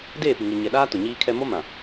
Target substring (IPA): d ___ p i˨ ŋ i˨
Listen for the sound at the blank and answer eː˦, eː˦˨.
eː˦˨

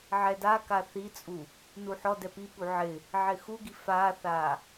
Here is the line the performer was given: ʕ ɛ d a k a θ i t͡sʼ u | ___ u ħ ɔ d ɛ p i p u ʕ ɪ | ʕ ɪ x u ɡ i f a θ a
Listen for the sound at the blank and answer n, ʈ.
n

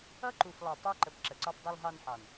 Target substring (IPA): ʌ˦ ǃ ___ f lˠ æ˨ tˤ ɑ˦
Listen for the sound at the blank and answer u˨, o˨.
u˨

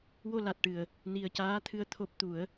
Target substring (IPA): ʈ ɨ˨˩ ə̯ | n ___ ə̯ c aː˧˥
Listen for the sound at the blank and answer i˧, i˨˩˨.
i˧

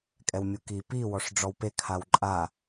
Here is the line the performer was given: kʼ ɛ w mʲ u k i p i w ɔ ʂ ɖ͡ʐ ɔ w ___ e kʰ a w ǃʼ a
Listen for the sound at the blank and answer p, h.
p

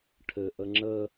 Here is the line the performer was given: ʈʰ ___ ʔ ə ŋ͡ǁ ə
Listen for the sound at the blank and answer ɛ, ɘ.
ɘ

